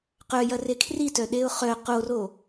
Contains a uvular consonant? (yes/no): yes